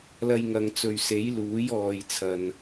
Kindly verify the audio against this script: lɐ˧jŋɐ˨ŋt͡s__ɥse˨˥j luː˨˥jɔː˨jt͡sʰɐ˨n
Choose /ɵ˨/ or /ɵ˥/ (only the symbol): ɵ˨